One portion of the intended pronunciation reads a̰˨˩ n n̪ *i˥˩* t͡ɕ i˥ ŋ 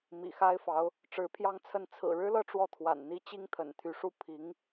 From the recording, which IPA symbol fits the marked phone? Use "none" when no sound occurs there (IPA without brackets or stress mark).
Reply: i˥